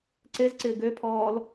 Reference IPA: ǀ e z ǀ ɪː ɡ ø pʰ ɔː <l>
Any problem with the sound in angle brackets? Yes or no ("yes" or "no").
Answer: no